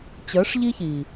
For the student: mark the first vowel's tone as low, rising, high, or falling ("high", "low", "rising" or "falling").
rising